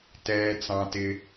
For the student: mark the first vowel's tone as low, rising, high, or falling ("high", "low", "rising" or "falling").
high